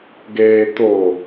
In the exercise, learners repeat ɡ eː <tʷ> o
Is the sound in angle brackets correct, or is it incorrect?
incorrect